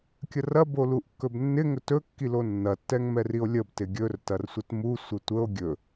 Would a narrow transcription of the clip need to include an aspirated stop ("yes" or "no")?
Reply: no